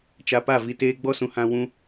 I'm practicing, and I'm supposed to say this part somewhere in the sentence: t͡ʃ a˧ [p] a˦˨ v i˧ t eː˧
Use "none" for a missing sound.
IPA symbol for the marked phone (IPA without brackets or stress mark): p